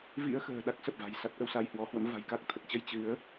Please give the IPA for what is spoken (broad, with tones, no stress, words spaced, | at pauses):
vḭ˧˥ə̯ xə̤ː˨˩ɗa˦˥k̚ sə˨˩p̚va̤˨˩jsa˦˥t̚ ʔə˧wsa˧jhwɔ˨˦hwə̰˧˥m va̤˨˩jka˦˥k̚t̪ʰə˨˩t̚t͡ɕə˧j t͡ɕɨ˨˦ə̯